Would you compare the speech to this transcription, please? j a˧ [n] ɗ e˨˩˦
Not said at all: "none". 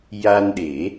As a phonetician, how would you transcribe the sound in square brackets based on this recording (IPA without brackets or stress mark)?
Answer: n